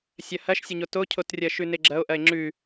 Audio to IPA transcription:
sʲɐhɐʃsʲɐɲo tocʰotrʲɐ ʃʉneɡ͡ǁɐo̯ ʔɐe̯ŋ͡ǁʉ

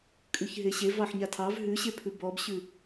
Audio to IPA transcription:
kʼʉçɦeɕev ɑħɲatʰɑv ɦʉɕepʰʉ bɔbɕʉ

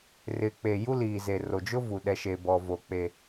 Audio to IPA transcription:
rɪ˨k͡pe˨ ju˦liː˨ze˨ ro˨d͡ʒʊ˦vu˨ ɗɛ˦ʃe˦bɔ˦vo˦ k͡pe˦

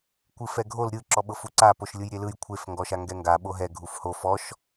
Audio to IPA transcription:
kʷɯfɛɡʱol ɾʲɯ ǁɔɓɤfuǀa poʃlʲɯjɾʲelɯj kʷʰef ŋɡɔʃaŋɡɛŋɡa ɓoɦɛ ɡʱufho fɔʃ

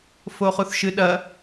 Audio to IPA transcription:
foχuθʃɨɗɐ

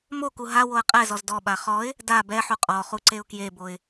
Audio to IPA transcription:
moku ɦa woə̯qʼɛzɔz dɔɓa χɔɪ̯ | da bɛħu qʼɔχu ǀeʊ̯kjeboɪ̯

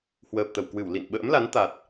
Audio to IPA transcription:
hwəː˨˩p̚t̪ə˧˩wkwɨ˧˩w lḭ˧˨n ɓə̰ː˧˥mla˨˦n t̪a˨˩t̚

